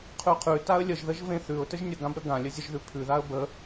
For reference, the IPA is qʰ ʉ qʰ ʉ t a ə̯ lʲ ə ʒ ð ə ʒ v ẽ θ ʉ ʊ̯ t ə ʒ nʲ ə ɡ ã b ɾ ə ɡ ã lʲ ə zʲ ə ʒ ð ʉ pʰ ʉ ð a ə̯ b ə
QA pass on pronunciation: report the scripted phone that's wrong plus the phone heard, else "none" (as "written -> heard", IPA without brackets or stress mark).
none